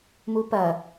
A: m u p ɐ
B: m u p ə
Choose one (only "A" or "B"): A